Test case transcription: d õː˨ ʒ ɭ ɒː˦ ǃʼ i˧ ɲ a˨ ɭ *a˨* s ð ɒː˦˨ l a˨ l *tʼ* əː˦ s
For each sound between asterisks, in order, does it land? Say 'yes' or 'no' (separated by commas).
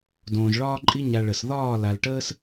no, no